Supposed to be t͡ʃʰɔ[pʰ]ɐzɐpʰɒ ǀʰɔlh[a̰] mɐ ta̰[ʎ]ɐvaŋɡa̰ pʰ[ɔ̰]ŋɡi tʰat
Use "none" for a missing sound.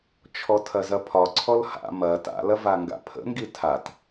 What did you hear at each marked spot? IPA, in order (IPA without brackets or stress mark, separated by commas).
tʰ, a̰, l, ə̰